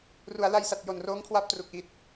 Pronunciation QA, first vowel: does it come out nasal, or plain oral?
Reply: oral